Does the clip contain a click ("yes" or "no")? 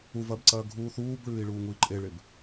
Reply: yes